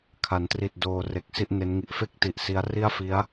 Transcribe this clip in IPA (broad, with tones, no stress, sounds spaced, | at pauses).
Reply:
kʰ a˩˦ n t r i˨˩ t̚ d oː˧ r e˨˩ k̚ s i˥˩ ʔ n e˦˥ n ŋ i˨˩ ʔ f e˥˩ k̚ t i˨˩ ʔ s i˦˥ a̯ r i˥˩ a̯ f i˦˥ a̯